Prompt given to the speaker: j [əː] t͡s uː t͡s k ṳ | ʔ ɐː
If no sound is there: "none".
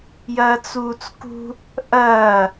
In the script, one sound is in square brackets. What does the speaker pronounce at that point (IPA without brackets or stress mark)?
ɐː